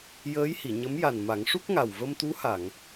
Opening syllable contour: rising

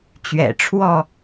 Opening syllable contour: low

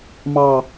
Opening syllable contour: low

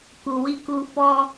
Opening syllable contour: low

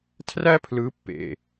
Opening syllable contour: high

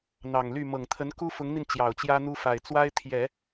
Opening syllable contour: low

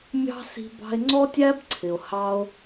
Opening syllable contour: high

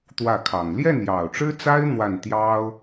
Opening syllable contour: falling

